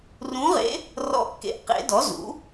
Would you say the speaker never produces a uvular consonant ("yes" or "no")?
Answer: no